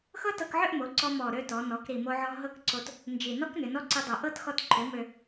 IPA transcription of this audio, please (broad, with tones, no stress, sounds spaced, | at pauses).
x ɤ˥ t ɤ˧ k ʕ ʏ˥˧ ʔ m o˩˧ ǀ ɔ˧ m ɔ˨˩ ɾ ø˥˧ t ɔ˩˧ n ɔ˩˧ k ɾ i˨˩ m o˧ ʕ ɔ˧ ɦ ɤ˥˧ k ǀ o˧ t | n d͡ʒ i˨˩ n ɔ˥ k n ʏ˩˧ n ɔ˥ ǀ i˧ dˤ ɤ˨˩ ʔ ɤ˥˧ t x ɔ˧ t ǃʰ ø˩˧ m ø˨˩